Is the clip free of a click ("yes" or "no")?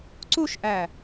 no